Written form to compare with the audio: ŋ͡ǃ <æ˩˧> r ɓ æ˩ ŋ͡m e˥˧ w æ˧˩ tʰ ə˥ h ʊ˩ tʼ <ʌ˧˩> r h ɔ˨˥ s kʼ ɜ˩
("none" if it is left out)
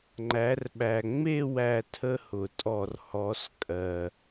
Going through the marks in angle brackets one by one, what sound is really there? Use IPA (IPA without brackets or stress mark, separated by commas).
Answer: æ˩˧, ɔ˧˩